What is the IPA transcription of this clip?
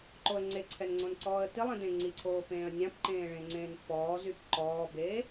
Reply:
ǃ o ə̯ ŋ͡ǀ e ǀʰ ɛ n ŋ͡ǀ õ n ǀ ɔː ə̯ t i lˠ ĩ d ẽ ŋ͡ǀ i ǀʰ oː p ẽː ə̯ nʲ ã p ǃ ẽː ɭ ẽ ŋ͡ǀ ẽː n pː ɔː z y p ǃ ɔː b e

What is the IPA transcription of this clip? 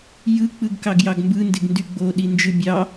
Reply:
j ɯ k͡p ɯ ɡ k ɑ ɡ j ɑ ɡ m b ɯ n d e ɡ n d y ɡ͡b o ɗ i n d͡ʒ ɯ bʲ ɑ

